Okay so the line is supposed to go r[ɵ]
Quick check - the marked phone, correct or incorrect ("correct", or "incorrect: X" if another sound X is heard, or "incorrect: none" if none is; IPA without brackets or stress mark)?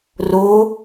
incorrect: o